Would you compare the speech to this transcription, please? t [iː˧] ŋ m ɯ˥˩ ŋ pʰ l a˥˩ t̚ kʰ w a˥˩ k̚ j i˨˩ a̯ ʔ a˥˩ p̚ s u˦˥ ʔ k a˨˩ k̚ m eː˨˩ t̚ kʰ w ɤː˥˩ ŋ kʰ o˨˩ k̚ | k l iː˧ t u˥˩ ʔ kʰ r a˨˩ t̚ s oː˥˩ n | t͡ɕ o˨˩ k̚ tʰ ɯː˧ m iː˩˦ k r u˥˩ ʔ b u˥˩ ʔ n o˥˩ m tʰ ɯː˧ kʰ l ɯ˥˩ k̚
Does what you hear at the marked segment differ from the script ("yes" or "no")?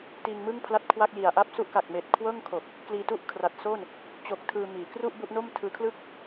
no